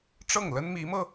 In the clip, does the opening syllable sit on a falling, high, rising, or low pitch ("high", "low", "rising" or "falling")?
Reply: falling